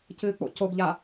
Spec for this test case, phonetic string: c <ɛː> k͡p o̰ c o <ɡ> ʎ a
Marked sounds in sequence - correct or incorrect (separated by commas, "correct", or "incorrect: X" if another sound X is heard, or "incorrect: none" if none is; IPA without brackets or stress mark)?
incorrect: ɨː, correct